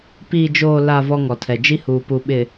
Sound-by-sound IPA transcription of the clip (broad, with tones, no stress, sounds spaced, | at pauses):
p iː˨ d͡ʒ oː˨ l a˨ v ɔ˦ ŋ ɔ˨ tʰ ɛ˨ d͡ʒ i˦ h uː˨ p u˨ ɓ ɪ˨